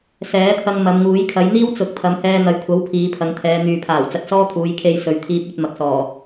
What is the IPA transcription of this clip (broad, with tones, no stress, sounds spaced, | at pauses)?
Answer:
s ɛː˨˥ t̪ʰ ɐ˧ ŋ m ɐ˨˧ m ŋ uː˨˥ j kʰ ɐ˨˥ j n̪ iː˥ w t͡s ʊ˨˥ k̚ t̪ʰ ɐ˨˧ m h ɛː˧ n̪ ɐ˨ j kʷʰ ɐ˨˥ w pʰ iː˨˧ pʰ ɐ˨˧ ŋ t̪ʰ ɛː˨˧ n̪ yː˨ pʰ aː˨˩ w t͡s ɐ˧ t̚ s ɔː˥ t̪ʰ uː˨˧ j kʰ e˧ j s ɵ˨ ɥ t̪ʰ iː˧ p̚ ɵ˧ t̚ m ɐ˨ k̚ s ɔː˨˩